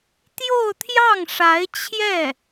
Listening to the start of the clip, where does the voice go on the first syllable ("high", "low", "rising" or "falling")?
falling